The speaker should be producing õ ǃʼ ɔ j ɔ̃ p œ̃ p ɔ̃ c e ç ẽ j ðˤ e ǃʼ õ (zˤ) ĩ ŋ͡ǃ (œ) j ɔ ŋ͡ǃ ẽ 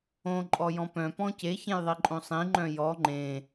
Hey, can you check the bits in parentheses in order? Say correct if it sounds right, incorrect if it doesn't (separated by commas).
incorrect, incorrect